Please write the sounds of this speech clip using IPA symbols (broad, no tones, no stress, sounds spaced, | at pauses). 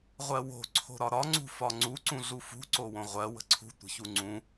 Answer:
ʁʷ ɜ w o̤ ǀʰ o̤ ɾ ɒ ɾ ɒ ŋ͡ǀ ṳ f ɒ ŋ͡ǀ u ǀ ũ ɮ u f ṳ ǀ o w õ ʁʷ ɜ w ə̤ ǀʰ ṳ tʷ ə̤ ç u ŋ͡ǀ ũ